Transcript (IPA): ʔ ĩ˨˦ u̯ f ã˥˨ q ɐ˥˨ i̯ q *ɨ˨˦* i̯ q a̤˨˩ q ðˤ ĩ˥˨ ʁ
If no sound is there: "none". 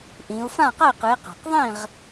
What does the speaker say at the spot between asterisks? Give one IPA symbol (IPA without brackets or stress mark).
ɨ˨˦